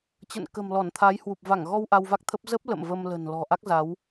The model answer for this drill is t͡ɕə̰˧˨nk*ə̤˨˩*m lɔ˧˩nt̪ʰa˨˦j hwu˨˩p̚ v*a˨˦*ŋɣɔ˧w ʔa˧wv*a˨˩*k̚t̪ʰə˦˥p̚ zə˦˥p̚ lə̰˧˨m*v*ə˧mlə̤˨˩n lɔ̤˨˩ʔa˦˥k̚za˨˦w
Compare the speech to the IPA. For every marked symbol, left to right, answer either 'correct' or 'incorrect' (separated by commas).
correct, incorrect, incorrect, correct